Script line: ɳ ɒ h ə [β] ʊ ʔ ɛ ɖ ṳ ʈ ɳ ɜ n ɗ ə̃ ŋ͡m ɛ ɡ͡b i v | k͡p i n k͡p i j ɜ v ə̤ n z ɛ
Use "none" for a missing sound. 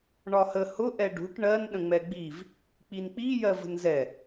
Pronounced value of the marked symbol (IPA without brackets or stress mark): h